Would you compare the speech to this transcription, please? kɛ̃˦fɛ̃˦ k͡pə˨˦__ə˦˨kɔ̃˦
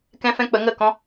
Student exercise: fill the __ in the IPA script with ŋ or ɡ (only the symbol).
ŋ